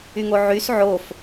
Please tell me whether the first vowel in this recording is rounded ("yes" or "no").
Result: yes